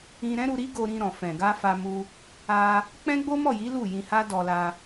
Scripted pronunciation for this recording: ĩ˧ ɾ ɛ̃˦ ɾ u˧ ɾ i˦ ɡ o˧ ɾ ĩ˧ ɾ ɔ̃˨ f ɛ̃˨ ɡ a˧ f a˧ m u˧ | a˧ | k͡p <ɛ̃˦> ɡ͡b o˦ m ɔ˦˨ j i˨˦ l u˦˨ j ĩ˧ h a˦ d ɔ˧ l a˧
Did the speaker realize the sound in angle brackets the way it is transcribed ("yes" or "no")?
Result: yes